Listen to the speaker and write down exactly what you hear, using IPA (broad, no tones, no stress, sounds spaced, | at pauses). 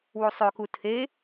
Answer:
w u sˤ ø k u tʰ e